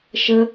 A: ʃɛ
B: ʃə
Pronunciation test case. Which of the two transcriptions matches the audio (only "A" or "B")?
B